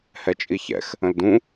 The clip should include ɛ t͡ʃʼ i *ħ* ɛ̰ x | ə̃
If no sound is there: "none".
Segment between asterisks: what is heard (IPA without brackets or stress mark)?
ç